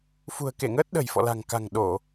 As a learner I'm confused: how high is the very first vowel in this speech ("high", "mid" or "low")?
high